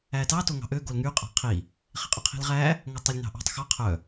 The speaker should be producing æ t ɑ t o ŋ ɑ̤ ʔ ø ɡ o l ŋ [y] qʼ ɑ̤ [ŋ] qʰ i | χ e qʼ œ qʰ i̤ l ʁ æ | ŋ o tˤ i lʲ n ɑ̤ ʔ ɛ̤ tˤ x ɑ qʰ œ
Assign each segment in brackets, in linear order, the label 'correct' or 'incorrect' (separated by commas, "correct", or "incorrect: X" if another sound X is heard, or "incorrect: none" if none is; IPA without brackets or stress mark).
correct, incorrect: none